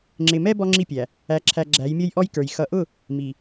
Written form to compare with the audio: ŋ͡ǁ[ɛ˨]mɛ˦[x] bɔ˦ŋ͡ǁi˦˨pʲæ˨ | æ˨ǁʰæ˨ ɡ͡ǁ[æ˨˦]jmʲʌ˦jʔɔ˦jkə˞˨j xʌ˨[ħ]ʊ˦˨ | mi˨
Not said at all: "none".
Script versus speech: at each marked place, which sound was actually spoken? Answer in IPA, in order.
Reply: ɪ˨, none, æ˨˦, ʔ

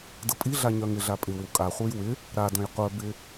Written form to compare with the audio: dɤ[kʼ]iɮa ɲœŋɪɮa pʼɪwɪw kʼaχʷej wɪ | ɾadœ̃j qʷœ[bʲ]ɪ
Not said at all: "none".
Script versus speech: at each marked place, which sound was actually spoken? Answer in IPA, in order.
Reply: pʼ, b

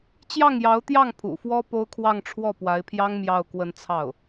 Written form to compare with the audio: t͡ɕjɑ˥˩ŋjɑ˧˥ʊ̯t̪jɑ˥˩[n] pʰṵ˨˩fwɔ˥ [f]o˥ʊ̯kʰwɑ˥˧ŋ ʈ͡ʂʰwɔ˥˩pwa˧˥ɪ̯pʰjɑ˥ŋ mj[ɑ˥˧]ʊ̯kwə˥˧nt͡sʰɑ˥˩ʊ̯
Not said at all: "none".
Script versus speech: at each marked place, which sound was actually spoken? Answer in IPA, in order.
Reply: ŋ, p, ɑ˥˧

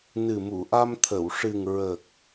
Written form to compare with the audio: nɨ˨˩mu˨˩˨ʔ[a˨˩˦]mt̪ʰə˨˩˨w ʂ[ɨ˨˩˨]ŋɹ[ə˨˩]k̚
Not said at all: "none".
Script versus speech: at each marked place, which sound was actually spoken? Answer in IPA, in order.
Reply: a˧, ɨ˨˩, ə˨˩

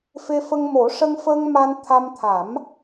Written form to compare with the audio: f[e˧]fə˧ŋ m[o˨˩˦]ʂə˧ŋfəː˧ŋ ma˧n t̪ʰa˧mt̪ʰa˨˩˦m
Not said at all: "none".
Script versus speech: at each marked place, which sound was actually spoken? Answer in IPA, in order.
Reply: e˧, o˨˩˦

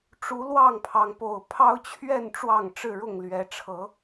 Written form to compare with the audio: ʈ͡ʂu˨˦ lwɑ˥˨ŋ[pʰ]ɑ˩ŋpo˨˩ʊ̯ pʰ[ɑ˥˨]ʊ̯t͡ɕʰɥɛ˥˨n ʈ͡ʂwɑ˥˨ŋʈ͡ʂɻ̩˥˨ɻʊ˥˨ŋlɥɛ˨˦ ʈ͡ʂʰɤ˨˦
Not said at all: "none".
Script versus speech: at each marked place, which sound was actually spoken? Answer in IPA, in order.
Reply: pʰ, ɑ˦

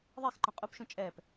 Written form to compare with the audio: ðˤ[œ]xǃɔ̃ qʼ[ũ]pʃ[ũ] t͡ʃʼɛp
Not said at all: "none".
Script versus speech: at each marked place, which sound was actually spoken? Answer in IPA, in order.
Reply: ɛ, u, ũ

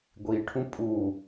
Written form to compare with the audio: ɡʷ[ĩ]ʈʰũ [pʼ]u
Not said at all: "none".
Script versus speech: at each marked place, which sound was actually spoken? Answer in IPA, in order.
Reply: i, pʼ

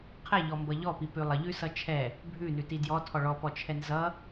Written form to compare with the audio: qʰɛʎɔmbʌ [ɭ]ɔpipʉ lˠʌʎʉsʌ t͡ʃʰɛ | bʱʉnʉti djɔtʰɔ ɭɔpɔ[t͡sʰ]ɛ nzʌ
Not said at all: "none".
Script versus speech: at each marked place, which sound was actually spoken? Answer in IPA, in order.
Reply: ʎ, t͡ʃʰ

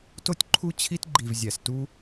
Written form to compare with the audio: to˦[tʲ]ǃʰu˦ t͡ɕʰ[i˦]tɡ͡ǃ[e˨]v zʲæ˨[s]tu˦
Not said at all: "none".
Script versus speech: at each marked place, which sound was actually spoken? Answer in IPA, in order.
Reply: tʲ, i˦, i˨, s

